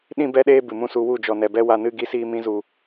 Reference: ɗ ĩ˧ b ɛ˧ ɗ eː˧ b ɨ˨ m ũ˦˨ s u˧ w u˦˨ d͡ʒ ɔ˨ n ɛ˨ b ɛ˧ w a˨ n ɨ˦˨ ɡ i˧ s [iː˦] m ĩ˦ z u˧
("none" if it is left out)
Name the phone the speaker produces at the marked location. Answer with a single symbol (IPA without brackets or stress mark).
iː˦